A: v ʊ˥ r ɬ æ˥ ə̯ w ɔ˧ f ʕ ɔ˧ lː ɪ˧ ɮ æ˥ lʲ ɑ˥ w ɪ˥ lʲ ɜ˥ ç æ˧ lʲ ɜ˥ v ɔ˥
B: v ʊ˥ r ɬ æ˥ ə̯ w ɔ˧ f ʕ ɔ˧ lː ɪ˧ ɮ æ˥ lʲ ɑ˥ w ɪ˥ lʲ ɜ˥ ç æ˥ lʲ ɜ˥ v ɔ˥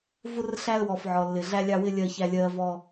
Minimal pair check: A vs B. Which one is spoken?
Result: B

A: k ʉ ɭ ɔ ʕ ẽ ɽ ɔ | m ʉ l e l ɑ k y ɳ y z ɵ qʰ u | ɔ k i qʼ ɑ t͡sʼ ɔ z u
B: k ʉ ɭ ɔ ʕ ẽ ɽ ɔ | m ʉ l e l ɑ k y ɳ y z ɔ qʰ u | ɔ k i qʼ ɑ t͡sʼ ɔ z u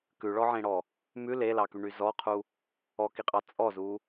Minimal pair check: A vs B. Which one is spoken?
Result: B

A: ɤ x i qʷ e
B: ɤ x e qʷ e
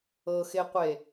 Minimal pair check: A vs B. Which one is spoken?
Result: B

